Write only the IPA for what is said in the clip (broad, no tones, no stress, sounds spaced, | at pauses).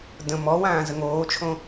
d ə̃ m ɔ w ãː z ə ŋ oː t͡ʃʰ õ